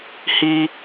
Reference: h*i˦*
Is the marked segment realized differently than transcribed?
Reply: no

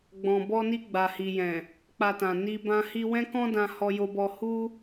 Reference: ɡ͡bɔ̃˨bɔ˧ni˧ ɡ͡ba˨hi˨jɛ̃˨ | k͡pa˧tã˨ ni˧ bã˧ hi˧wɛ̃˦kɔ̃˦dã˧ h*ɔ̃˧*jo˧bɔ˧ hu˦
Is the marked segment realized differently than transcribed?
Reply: yes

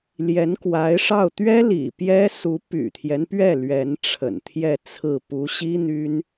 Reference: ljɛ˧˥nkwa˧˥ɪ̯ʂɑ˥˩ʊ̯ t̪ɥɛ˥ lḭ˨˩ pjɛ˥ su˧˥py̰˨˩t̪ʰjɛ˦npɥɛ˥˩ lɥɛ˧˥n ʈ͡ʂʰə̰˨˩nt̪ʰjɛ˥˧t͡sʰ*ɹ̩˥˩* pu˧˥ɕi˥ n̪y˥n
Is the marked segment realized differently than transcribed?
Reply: no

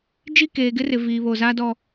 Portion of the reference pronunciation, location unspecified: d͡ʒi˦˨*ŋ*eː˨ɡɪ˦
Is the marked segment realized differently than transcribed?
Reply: yes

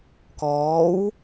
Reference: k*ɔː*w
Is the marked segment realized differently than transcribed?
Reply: no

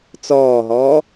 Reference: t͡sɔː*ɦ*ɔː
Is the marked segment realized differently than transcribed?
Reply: no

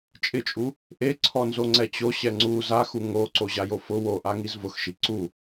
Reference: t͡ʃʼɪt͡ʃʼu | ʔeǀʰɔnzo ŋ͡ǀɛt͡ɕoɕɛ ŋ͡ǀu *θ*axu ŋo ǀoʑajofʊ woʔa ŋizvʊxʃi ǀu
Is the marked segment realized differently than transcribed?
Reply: yes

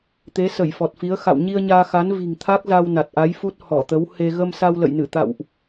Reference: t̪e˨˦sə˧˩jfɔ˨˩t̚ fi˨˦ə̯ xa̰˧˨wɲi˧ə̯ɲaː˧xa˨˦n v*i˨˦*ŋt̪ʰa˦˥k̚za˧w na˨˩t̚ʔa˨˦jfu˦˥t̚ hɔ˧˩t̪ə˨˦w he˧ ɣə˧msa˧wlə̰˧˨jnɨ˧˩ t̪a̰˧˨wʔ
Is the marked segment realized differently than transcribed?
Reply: yes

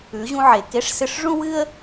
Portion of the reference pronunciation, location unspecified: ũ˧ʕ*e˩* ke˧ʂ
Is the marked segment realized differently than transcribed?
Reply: no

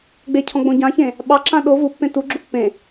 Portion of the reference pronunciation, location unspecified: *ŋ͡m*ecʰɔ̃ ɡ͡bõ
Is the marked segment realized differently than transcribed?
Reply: yes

